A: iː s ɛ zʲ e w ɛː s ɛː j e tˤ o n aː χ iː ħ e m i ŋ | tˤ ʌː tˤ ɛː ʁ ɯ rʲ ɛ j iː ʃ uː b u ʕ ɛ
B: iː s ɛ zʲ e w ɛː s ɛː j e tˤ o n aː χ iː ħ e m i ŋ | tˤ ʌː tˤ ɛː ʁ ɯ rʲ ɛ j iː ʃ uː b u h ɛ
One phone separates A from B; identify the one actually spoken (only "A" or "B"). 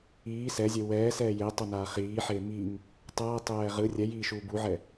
A